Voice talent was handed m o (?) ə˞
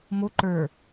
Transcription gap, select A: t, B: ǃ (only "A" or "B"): B